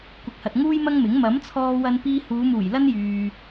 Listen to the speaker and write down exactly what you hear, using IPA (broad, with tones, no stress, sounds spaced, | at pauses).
kʷ ɪ˨ k̚ h ɐ˨ t̚ ŋ uː˥ j m ɐ˥ ŋ m ɪ˨˥ ŋ m ɐ˨˥ m t͡sʰ ɔː˧ w ɐ˧ n p iː˧ h uː˨˧ m uː˨˩ j l ɐ˥ n j yː˨